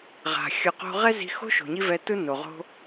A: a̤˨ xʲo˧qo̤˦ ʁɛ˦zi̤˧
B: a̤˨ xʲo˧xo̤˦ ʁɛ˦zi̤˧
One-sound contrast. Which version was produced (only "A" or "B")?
A